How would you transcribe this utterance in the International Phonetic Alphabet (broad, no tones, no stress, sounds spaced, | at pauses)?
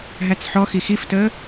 ɦ æ t͡s ħ ɔ x i x i f t əː